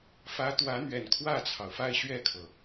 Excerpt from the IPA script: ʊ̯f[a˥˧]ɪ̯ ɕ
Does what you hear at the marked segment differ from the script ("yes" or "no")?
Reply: no